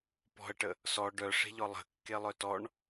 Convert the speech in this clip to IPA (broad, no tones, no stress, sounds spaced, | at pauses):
p ɔ̤ ə̯ ʈ ə | s ɔ ɖ œ ʂ e̤ ʎ ɔ lˠ ə̤ kː e lˠ œ t ɔ ɳ